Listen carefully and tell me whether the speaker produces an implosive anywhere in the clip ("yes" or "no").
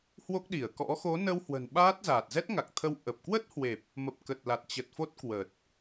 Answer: yes